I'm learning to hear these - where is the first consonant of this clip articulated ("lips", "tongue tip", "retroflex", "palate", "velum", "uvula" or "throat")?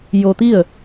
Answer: palate